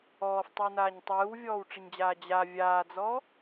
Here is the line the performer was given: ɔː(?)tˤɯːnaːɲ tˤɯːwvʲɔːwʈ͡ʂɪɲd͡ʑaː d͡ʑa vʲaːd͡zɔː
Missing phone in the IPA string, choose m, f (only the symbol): f